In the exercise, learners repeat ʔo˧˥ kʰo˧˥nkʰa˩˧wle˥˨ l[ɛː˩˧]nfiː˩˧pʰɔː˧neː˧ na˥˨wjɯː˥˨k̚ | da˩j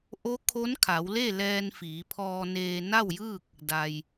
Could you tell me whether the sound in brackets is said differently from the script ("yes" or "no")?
yes